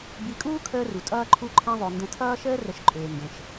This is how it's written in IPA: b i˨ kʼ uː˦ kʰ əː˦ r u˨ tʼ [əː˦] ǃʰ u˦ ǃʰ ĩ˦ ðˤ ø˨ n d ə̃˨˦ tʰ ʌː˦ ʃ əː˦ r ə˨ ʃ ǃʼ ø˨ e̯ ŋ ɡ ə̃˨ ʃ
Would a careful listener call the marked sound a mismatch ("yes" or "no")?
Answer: yes